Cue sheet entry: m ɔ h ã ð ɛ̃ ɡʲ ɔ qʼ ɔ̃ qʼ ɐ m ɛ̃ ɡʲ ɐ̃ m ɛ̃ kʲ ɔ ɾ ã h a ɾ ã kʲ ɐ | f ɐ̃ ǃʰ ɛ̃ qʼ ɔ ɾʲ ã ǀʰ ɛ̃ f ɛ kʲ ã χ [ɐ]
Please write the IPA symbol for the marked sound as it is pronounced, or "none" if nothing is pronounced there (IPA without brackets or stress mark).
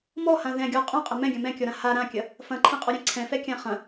ɐ̃